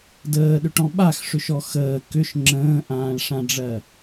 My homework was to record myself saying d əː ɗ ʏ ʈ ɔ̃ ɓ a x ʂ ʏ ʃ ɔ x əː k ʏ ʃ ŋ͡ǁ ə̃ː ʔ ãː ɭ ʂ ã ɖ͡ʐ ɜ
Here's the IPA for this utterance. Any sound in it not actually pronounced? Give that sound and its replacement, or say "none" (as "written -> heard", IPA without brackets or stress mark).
none